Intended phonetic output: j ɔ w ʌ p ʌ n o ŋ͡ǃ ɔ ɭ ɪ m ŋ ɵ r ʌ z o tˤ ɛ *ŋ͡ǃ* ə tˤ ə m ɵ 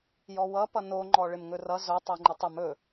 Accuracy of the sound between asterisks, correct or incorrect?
correct